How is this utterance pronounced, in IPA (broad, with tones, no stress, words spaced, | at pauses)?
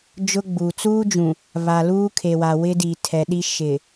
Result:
d͡ʒʊ˦ɡ͡buː˨ t͡suː˦d͡ʒũ˨ | βa˨luː˦ kʰe˨wa˨wɪ˦diː˨ tʰɛ˨ɗi˦ ʃɪ˨